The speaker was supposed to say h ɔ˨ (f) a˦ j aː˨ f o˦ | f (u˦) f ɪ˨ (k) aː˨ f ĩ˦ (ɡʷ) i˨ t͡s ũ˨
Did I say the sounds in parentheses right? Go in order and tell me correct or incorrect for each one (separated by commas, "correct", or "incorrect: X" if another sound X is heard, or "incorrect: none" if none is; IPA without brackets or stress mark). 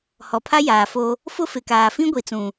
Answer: incorrect: pʰ, incorrect: ʊ˦, correct, correct